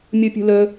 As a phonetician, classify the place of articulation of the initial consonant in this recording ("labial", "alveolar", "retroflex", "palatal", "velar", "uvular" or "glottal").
labial